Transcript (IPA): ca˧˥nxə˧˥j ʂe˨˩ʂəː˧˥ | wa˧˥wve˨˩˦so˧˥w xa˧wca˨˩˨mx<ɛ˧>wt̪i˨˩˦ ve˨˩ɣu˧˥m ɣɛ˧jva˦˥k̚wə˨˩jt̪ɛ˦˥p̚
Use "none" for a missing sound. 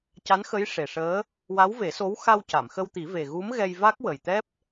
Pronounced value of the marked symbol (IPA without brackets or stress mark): ə˧